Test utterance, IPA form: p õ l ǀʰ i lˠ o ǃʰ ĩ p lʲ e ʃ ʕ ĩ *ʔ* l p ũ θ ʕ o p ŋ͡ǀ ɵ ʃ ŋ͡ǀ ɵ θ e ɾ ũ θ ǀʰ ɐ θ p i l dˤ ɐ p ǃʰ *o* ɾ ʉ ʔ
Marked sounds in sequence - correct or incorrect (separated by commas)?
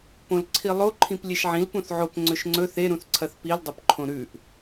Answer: incorrect, incorrect